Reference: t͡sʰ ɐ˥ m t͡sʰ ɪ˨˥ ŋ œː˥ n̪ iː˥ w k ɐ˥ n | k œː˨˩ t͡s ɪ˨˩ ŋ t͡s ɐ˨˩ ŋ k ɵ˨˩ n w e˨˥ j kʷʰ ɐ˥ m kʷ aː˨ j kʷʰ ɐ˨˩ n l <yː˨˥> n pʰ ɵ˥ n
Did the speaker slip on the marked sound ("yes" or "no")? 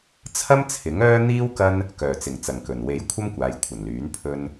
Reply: no